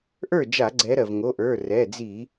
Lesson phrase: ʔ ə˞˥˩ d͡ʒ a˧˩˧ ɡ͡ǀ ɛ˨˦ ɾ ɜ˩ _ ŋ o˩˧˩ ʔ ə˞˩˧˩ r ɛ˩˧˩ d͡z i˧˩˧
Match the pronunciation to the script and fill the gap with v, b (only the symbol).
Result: v